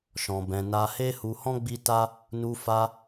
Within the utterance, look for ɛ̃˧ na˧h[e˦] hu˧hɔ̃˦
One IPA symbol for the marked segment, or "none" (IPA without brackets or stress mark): e˦